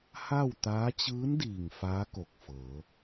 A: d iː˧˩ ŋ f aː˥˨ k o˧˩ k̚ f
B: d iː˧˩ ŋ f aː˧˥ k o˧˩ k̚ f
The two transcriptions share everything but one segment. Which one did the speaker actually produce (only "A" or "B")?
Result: B